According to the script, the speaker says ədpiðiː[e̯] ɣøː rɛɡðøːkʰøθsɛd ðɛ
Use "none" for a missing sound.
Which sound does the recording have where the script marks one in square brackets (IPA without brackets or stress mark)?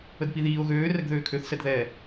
o̯